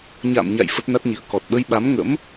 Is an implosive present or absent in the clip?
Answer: present